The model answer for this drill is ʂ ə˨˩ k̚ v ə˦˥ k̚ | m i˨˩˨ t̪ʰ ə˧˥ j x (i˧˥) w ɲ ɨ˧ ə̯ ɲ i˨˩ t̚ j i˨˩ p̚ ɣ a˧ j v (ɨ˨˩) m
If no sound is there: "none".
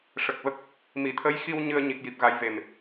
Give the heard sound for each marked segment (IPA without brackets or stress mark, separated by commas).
i˧, e˨˩